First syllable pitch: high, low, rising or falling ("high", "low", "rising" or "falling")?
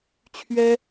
high